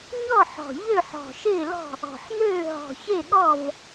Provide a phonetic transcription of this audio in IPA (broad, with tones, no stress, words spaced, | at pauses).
ɲɔ˥˨ħɔ̤˨˩ ʎø˥˨ħɔ̤˨˩ʃɪː˥˨lɔ̤˥˨ | ɔ̤˨˩ħn̪øː˥˨ ɦɔ̤˨˩çe˥˨ɠɔ˥˨v